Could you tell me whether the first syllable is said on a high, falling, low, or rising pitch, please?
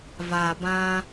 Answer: low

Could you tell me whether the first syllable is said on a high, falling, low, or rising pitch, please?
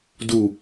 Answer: low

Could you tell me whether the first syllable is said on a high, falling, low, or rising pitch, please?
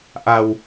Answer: low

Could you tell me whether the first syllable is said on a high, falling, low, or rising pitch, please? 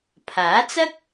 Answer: rising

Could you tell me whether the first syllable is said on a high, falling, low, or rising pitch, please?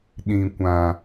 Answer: low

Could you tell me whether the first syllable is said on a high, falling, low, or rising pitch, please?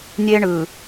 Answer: high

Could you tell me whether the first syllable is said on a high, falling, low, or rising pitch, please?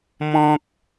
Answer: high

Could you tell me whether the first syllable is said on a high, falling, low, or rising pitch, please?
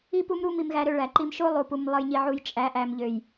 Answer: high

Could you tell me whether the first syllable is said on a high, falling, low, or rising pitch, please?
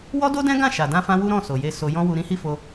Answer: high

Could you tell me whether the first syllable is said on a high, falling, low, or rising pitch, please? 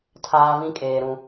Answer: high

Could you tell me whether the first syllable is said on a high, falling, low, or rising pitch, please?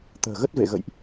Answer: low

